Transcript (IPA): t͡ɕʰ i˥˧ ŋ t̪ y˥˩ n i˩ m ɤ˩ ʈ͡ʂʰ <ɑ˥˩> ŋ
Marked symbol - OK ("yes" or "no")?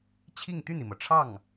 yes